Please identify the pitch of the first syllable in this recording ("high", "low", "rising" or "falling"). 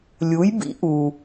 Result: rising